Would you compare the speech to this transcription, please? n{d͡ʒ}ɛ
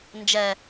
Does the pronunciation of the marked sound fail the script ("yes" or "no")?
no